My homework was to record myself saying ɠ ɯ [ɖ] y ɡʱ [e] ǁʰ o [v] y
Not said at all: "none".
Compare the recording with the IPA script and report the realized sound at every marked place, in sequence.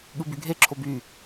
b, e, b

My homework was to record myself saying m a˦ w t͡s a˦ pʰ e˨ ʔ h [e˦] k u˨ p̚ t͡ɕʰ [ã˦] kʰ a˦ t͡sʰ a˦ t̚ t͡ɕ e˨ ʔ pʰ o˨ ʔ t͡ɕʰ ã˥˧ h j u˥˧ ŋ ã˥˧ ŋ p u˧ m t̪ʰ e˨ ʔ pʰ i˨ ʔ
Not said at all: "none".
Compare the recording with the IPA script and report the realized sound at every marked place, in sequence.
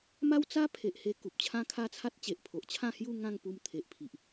e˧, ã˦

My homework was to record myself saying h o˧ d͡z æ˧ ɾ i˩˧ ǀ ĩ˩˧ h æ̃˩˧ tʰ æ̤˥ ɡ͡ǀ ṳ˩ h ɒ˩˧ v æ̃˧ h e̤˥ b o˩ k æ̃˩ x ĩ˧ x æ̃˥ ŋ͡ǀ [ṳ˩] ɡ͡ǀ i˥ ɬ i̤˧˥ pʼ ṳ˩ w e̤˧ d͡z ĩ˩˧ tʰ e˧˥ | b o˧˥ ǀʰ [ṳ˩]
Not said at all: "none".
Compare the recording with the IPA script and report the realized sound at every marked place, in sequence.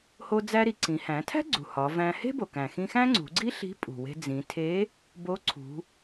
ṳ˩˧, ṳ˩˧

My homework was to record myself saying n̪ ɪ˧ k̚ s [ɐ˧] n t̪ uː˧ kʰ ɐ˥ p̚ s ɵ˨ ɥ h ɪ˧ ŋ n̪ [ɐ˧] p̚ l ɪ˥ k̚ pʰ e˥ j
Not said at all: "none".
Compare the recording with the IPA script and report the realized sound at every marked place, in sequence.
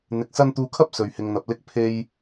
ɐ˥, ɐ˧

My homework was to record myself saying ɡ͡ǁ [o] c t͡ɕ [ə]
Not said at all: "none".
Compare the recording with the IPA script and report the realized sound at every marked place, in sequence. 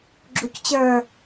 u, ə˞

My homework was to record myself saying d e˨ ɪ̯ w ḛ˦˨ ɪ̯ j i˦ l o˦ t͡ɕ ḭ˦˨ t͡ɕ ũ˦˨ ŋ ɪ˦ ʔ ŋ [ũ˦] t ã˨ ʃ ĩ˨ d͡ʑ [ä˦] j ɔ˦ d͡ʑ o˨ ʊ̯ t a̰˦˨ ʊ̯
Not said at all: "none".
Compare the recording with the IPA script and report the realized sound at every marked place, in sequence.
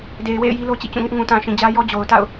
ũ˨, ä˦

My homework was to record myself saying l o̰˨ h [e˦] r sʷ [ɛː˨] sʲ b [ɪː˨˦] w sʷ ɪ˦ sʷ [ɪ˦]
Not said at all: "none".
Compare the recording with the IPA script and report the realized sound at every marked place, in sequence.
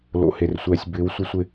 e˨, ɛː˨, ɪː˨˦, ɪ˦

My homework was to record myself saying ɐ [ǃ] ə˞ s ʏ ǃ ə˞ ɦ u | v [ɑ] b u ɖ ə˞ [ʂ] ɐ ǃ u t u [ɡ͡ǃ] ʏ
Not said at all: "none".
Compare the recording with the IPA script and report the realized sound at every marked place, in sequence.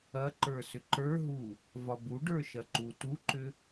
ǃ, ɒ, ʃ, ǃ

